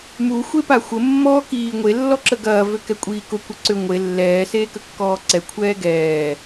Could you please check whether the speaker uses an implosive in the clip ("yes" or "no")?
no